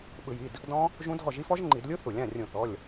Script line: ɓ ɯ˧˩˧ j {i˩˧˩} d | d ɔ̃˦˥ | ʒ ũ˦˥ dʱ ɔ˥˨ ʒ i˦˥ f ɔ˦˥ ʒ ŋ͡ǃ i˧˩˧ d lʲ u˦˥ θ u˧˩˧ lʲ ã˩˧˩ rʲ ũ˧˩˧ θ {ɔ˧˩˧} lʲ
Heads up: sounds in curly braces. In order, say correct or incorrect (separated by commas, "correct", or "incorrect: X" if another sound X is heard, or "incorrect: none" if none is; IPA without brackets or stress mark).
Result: correct, incorrect: ɔ˩˧˩